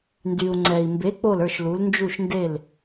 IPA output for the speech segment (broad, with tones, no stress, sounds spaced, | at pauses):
n d y˩ u̯ ŋ͡ǀ ɛ˩ i̯ m b e˩˥ k͡p o˥˩ l ə˞˥˩ ʃ l u˩˥ l n d͡ʒ u˥˩ ʃ n d e˥˩ l